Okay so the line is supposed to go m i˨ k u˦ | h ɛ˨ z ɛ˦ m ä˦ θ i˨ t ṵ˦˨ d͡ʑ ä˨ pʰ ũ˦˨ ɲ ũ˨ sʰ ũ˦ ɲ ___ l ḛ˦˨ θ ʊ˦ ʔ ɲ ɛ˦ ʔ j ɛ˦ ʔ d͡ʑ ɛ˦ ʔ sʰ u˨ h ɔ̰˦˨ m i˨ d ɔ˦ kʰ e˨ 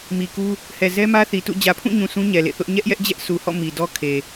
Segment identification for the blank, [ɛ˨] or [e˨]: ɛ˨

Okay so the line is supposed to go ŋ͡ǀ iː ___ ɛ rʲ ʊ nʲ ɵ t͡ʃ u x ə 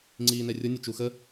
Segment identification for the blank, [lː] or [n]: n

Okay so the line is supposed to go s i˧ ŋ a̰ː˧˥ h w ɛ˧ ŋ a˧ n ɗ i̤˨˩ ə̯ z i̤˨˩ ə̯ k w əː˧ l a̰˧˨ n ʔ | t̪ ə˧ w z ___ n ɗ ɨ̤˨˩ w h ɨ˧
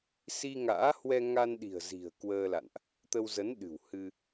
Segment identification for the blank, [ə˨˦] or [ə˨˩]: ə˨˦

